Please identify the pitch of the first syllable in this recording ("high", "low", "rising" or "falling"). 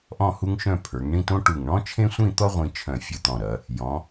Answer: falling